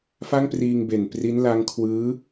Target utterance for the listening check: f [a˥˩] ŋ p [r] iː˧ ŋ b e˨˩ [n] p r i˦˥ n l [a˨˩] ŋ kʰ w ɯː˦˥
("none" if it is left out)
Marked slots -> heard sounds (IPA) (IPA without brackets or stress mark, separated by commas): a˥˩, r, n, a˦˥